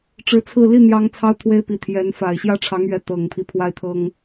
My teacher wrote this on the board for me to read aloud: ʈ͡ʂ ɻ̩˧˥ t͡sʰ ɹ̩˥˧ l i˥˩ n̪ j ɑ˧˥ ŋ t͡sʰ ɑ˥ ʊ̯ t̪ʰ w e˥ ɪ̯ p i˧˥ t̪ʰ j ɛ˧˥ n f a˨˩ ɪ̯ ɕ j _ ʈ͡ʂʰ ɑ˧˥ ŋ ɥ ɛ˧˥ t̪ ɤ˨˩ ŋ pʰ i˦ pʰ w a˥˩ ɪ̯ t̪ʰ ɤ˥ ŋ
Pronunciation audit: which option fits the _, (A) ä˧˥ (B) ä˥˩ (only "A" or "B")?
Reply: B